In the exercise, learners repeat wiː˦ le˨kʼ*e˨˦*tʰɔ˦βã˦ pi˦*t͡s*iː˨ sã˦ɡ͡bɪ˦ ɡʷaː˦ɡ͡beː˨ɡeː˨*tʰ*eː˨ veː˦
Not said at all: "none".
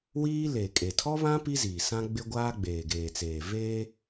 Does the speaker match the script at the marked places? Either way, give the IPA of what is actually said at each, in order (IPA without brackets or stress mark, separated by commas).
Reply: e˨, z, t͡s